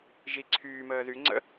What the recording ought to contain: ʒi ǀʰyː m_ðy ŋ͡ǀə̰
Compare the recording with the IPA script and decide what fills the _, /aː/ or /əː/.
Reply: əː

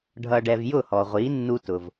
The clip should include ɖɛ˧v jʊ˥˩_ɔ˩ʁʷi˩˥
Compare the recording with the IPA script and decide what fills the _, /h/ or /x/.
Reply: h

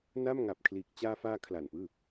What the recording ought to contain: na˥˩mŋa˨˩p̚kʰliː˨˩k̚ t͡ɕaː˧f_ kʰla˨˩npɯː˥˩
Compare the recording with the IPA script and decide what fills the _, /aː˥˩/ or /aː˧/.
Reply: aː˧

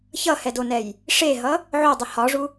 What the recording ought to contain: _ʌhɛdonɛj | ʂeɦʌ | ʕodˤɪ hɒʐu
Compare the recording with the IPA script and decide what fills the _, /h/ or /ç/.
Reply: ç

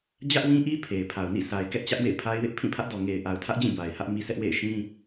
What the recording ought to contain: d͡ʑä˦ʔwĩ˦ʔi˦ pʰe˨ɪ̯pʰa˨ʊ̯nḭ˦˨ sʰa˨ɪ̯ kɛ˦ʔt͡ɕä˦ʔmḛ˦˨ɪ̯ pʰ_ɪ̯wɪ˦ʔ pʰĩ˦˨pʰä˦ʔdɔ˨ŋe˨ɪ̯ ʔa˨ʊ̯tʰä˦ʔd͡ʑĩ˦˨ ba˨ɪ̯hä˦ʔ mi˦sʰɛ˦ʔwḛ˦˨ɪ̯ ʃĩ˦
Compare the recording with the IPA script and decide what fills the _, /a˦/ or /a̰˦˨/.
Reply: a˦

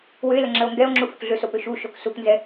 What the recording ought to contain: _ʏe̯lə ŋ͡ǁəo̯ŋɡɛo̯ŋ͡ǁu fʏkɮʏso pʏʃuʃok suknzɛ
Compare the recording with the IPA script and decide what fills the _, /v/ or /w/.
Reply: w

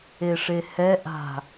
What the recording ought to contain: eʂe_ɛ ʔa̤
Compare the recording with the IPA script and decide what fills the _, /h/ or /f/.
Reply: h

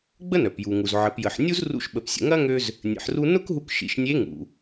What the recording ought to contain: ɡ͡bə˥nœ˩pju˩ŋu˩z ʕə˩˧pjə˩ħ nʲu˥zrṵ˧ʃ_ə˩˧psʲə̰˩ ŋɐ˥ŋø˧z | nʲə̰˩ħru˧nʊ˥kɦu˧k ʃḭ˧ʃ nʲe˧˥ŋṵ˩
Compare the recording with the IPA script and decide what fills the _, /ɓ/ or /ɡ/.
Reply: ɓ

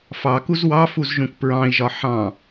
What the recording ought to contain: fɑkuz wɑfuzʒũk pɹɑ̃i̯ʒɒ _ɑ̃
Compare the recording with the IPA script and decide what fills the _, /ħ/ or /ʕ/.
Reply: ħ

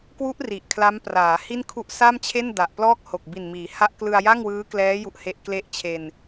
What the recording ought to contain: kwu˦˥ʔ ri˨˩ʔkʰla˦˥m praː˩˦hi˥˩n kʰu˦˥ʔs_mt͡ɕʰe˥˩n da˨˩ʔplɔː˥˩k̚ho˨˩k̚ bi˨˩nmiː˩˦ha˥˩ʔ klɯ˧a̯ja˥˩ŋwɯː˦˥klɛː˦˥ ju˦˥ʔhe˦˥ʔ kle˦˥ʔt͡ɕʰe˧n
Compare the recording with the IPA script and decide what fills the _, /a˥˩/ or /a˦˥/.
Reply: a˥˩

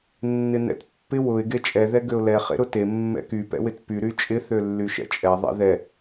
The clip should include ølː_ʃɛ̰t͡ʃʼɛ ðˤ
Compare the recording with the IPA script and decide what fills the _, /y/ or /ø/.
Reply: y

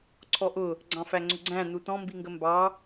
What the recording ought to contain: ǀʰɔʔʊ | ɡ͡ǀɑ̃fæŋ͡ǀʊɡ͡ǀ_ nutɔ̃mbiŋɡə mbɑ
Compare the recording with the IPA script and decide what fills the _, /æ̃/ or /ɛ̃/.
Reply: æ̃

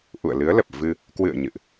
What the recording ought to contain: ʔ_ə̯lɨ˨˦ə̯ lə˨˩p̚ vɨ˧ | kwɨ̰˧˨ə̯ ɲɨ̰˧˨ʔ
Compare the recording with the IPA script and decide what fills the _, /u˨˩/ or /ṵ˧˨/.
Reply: ṵ˧˨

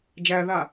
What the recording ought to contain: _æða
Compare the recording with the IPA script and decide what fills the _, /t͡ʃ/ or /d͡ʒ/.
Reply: d͡ʒ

